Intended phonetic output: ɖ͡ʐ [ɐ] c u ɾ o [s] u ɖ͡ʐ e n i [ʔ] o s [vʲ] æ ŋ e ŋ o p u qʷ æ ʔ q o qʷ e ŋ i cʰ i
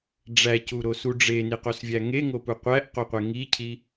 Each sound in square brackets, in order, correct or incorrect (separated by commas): incorrect, correct, incorrect, correct